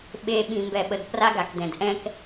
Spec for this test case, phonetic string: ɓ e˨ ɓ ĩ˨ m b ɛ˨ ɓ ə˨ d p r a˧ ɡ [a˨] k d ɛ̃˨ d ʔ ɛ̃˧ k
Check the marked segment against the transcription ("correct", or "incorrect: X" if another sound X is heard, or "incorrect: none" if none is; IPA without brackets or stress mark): correct